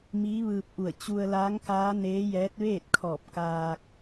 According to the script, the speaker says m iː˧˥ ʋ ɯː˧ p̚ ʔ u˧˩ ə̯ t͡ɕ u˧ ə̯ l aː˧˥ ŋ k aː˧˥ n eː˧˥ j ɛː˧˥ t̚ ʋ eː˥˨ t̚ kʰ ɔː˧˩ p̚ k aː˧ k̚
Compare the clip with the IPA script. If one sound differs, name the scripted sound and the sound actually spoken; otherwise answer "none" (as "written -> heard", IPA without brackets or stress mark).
none